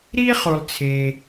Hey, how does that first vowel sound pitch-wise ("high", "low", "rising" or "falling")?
high